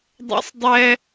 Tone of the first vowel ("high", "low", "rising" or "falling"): high